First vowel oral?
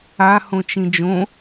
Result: yes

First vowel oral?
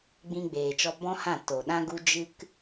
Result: no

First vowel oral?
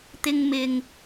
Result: yes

